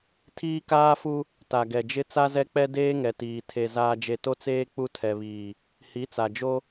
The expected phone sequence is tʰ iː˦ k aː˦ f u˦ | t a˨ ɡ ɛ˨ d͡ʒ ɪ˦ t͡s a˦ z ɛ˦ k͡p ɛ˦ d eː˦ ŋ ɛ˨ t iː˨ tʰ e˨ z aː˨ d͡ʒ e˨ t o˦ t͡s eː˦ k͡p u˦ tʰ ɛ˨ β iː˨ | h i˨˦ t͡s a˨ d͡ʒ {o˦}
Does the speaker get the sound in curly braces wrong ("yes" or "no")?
no